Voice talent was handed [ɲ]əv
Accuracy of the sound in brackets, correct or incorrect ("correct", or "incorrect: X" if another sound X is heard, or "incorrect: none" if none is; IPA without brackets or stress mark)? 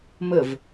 incorrect: m